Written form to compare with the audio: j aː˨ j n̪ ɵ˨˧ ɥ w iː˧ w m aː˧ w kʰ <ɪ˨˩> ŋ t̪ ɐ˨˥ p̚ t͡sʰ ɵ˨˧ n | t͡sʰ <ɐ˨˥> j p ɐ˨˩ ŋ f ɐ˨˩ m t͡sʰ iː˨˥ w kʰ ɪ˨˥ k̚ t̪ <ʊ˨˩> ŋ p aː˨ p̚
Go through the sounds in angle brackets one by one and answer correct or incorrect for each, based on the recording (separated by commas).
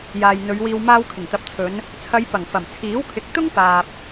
correct, incorrect, incorrect